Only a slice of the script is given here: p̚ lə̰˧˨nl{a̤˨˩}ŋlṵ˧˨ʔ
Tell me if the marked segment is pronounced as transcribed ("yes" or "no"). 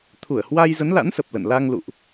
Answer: no